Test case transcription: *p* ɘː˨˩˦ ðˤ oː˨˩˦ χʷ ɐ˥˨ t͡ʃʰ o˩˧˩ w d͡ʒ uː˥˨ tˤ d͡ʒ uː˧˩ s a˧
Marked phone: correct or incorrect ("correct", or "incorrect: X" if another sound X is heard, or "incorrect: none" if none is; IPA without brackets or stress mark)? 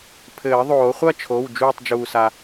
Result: incorrect: pʰ